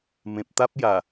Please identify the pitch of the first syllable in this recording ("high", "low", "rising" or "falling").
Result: low